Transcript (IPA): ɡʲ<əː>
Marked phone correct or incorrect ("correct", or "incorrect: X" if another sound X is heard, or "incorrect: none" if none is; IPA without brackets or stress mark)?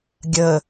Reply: correct